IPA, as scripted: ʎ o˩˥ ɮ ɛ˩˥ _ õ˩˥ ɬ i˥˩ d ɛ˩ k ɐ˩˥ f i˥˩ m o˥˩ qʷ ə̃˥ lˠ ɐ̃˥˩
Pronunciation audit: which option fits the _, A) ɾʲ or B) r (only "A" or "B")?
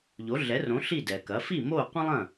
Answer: B